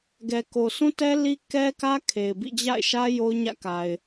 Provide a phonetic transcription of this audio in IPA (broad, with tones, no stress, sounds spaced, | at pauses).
ɡ ɛ˨ k o˨ sʰ ũ˦ t ɛ˦ l i˦ k ɛ˦ k ä˦ kʰ e˨ ɪ̯ b ḭ˦˨ d͡ʑ a̰˦˨ ɪ̯ ʃ ä˦ j o˦ ʊ̯ ɲ ä̰˦˨ k a˨ ɪ̯